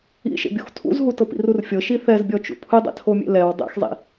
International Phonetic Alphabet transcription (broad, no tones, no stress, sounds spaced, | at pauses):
ḭ ʃ ḛ bʲ o x tʰ ṵ z ɦ u t ɤ p ḭ r u r fʲ ɤ ʃ i θ ɛ z bʲ ɔ t͡ʃ ṵ pʰ ɯ dˤ ḛ tʰ o mʲ ḛ l ɛ w dˤ ḛ x zˤ ḭ